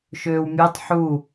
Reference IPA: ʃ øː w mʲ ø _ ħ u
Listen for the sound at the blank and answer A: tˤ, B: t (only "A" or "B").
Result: A